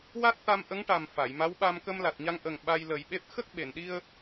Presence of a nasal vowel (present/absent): absent